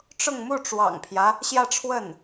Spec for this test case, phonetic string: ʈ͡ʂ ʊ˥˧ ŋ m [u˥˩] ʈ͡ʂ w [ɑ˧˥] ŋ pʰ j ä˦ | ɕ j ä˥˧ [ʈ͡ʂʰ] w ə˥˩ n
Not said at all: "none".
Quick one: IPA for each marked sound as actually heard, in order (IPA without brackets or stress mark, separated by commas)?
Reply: u˥˩, ɑ̰˨˩, ʈ͡ʂʰ